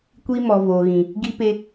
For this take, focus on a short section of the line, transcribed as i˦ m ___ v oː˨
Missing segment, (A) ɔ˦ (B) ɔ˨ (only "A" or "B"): B